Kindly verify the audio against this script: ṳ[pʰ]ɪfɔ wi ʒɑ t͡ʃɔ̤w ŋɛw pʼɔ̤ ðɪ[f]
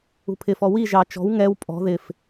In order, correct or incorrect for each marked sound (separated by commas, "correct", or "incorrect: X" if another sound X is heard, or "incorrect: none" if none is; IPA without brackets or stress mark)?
correct, correct